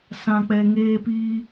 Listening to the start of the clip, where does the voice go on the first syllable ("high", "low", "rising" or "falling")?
low